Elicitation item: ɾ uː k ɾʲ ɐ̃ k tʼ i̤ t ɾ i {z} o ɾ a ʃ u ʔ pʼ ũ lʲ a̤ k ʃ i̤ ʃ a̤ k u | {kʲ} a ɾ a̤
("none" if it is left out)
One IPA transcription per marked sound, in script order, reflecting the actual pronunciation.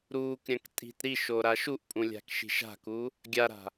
ʃ, ɡʲ

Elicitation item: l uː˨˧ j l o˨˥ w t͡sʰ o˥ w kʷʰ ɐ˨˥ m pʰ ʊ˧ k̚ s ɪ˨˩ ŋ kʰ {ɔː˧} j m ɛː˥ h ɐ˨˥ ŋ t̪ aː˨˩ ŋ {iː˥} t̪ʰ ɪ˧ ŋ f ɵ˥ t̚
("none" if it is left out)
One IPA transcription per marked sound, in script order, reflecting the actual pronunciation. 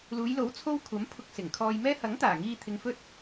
ɔː˧, iː˧

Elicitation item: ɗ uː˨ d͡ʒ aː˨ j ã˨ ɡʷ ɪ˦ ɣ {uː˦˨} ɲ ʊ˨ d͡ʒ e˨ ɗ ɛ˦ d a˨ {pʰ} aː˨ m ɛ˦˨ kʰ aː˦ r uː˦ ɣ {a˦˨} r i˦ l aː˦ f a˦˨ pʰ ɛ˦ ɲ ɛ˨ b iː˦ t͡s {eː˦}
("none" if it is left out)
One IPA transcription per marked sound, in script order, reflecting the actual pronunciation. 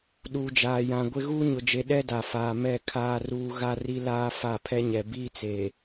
uː˦, f, a˦, eː˨

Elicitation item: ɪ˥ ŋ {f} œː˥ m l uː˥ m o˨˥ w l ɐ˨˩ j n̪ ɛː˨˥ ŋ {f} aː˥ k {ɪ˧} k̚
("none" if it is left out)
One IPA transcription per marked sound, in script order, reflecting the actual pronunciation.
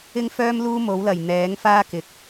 f, f, ɪ˨˥

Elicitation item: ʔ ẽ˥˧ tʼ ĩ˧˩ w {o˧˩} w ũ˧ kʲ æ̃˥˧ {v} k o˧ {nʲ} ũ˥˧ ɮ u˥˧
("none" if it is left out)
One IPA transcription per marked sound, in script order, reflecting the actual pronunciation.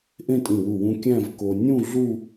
u˧˩, v, nʲ

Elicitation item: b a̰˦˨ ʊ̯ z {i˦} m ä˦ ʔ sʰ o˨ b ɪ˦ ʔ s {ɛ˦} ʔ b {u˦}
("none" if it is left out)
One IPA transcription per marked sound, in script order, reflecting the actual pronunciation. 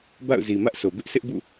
i˨, ɪ˦, ṵ˦˨

